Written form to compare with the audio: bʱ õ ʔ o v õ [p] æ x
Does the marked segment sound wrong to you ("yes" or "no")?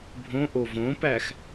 no